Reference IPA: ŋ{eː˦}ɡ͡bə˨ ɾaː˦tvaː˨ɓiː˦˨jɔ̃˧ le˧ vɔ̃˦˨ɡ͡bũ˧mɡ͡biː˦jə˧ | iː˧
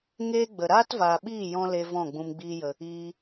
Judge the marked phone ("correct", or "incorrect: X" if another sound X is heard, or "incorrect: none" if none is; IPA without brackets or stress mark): correct